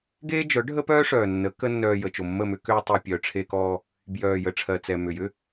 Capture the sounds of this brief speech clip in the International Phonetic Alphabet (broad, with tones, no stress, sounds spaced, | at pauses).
ɡ eː˦ d͡ʒ œ˨˦ ɖʱ ə˦ p œː˦ ʂ œː˨ nː ə˨˦ k ə˦ nː œː˧ j ə˨ t͡ʃ o˨ mː ə˦˨ m ʏ˦ k ʏː˦ tˤ e˧ pʲ œ˨ ʈ͡ʂʰ e˧ k ɔː˧ | b j œː˨ j ə˨ ʈ͡ʂʰ ɜ˨ t͡s ɛ˨ m ʏ˨ j ʏ˦